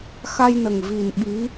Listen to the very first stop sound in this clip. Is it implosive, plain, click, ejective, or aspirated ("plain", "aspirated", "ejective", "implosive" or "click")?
implosive